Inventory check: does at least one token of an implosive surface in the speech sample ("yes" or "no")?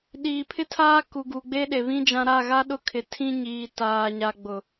yes